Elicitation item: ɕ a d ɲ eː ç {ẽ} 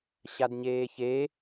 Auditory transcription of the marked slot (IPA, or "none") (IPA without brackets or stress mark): e